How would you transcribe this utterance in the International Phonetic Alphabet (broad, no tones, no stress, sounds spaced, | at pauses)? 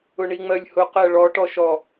ʊ ɳ i ŋ͡m ɜ lʲ h ʊ q ɜ ɭ ɔ ʈ ɔ ʃ ɔ